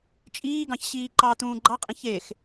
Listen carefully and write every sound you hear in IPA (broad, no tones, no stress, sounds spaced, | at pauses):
t͡ʃʼ iː ɡ ɑ̃ ç ɕ iː ǃ ɑ t̪ ũː ɡ͡ǃ ɑ qʼ ĩ ç e x